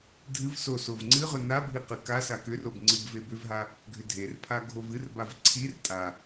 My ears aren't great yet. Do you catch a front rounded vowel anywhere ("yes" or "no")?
yes